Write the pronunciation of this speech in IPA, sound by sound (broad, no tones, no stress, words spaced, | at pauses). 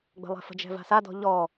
ɡ͡bə̤lˠɛ̤fə̤d͡ʒɛ̤ va̤sadɔ̤ ʎɔ